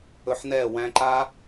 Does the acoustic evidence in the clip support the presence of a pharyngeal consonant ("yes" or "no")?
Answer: yes